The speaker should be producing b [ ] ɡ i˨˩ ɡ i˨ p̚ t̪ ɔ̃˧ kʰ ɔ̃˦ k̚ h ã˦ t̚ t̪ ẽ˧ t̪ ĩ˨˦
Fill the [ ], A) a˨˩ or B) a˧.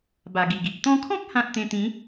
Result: A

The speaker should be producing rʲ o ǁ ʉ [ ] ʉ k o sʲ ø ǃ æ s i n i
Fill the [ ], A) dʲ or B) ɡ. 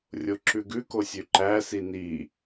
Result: B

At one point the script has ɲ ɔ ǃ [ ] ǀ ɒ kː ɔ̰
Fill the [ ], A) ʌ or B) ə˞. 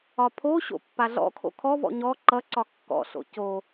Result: A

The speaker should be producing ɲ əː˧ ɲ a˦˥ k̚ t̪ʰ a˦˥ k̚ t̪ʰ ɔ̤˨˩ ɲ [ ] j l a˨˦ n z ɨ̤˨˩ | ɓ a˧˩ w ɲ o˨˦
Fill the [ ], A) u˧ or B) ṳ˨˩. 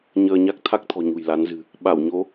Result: B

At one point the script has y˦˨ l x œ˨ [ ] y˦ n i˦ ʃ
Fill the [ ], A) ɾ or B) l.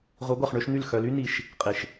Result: B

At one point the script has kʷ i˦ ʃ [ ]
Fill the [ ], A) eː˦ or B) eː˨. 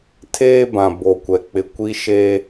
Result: A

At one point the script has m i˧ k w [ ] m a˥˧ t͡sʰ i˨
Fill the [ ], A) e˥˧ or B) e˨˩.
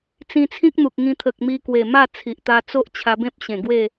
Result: B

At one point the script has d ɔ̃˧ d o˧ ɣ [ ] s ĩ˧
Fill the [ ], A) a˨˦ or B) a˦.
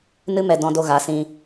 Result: A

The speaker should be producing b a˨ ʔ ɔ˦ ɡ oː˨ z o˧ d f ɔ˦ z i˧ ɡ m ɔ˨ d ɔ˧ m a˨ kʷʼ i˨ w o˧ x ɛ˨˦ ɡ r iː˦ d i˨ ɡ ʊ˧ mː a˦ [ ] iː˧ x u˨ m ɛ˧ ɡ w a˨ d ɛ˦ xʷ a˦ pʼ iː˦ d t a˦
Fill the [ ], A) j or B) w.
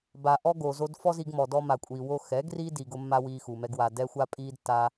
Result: B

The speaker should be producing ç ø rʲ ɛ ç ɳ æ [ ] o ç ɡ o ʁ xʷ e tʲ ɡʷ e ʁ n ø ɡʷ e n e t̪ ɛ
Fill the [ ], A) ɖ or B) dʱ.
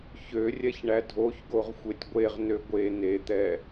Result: B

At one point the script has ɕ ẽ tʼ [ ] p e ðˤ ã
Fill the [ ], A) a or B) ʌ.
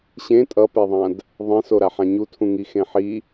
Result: B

